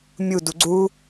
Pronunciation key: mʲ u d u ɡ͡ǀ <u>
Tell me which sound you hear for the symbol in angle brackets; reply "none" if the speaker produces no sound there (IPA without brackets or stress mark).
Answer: u